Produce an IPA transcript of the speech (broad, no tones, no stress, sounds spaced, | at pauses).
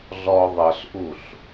ɮ ɔ ðˤ ɤ ɬ ʔ u ɬ